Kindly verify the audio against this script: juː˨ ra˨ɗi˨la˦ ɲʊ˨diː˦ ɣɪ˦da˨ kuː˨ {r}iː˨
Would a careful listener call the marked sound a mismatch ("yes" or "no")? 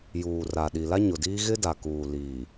yes